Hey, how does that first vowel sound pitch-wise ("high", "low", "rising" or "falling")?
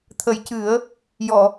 low